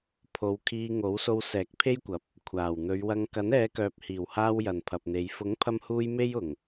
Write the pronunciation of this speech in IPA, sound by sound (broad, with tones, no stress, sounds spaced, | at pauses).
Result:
pʰ o˨˧ w kʰ iː˧ ŋ o˨˥ w s o˧ w s ɛː˨˥ k̚ pʰ e˥ j kʷ ɐ˨˥ p̚ | kʷʰ aː˨˩ w n̪ ɵ˨˧ ɥ w ɐ˧ ŋ k ɐ˨˥ n ɛː˨˧ k œː˨ p̚ h iː˨˩ w h aː˧ w j ɐ˨ n pʰ ɐ˨ p̚ n̪ e˨˧ j f ʊ˨˥ ŋ pʰ ɐ˧ m h uː˧ j m e˥ j ʊ˨˩ ŋ